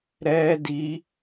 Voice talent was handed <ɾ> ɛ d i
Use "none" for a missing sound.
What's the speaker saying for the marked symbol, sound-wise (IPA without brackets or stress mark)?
ɾ